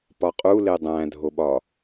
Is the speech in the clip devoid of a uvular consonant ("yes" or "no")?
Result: no